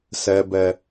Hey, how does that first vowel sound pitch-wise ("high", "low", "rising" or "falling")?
low